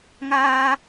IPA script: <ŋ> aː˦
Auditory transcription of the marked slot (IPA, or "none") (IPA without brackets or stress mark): ŋ